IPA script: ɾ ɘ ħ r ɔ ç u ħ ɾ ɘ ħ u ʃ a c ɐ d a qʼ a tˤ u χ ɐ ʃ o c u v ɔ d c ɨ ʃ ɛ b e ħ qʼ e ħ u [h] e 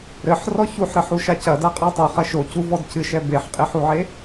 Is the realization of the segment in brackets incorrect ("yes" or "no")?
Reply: yes